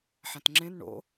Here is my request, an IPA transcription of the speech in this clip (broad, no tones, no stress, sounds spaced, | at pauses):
ħ ã t ŋ͡ǁ ẽ n ɳ o̰